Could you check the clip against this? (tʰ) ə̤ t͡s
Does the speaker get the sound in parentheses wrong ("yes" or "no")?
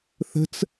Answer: yes